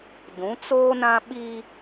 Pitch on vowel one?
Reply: rising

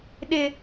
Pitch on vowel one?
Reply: low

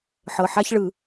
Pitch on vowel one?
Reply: low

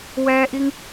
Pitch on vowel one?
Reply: high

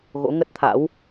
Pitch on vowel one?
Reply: rising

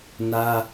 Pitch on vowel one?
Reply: high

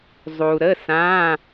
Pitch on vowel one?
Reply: low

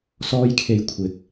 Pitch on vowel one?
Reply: high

